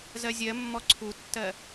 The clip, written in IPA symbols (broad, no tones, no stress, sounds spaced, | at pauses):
z ɜ zʲ ɜ mː ɔ ǀʰ u tː ɜ